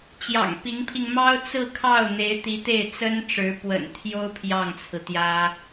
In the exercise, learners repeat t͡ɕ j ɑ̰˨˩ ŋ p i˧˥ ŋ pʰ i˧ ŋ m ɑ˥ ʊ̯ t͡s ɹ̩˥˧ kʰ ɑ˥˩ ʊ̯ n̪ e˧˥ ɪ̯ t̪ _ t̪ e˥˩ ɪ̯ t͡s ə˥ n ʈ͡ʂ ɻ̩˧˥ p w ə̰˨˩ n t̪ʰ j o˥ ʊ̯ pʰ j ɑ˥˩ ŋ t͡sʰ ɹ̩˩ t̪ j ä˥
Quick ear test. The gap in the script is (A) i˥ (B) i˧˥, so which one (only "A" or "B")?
B